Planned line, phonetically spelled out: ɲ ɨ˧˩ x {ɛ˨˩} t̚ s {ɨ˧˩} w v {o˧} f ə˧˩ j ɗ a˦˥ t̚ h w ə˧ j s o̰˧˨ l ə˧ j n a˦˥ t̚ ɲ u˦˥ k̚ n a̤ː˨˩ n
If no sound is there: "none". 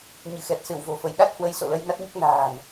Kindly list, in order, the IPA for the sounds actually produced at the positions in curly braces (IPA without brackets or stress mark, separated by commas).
ɛ˨˩, ɨ˧˩, o̤˨˩